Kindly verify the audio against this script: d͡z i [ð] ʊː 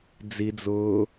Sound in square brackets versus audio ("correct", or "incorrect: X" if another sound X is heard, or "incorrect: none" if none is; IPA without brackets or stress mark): incorrect: d͡z